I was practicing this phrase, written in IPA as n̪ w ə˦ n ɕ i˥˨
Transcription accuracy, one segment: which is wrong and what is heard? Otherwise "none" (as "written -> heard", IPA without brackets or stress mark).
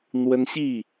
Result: none